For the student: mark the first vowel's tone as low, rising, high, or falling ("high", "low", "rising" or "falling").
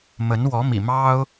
rising